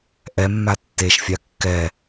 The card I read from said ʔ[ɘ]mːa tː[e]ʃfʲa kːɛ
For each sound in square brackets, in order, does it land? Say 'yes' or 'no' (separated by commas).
no, yes